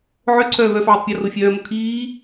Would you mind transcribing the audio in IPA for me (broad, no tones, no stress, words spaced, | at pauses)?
ʕøǀʰœː vœːfʕøtˤpʲɔ rofʲœːmo kʰiː